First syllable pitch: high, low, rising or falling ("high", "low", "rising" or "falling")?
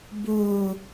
low